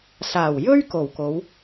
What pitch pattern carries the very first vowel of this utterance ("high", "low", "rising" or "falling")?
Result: low